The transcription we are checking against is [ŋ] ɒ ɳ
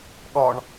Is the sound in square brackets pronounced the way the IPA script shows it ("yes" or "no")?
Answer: no